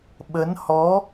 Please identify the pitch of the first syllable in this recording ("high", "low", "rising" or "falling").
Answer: rising